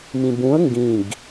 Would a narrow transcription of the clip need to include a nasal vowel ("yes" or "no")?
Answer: yes